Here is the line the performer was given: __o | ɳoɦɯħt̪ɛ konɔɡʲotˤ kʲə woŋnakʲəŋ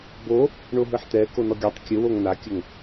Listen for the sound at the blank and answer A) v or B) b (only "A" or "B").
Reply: B